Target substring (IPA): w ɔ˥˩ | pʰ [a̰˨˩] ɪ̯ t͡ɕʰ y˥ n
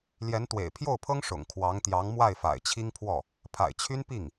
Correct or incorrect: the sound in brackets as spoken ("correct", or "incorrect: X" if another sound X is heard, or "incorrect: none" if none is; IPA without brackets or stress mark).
correct